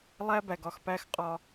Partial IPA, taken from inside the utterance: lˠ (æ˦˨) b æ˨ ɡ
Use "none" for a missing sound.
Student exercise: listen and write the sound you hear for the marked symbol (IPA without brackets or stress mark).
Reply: æ˦